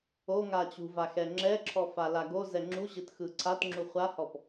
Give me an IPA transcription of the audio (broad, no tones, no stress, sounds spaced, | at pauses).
o ŋ a t͡ɕ ṳ v a x ɛ ŋ͡ǁ ɛ ǁʰ ɔ f a l a ɡ o z ɛ ŋ͡ǁ u ʑ ɯ t x ɯ ǀʰ a t ŋ͡ǁ u χʷ a h ɔ p